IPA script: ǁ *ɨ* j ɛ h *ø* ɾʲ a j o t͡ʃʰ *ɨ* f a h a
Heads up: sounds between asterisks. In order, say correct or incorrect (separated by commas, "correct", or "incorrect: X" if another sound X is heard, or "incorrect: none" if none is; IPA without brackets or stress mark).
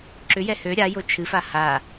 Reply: incorrect: ʏ, correct, correct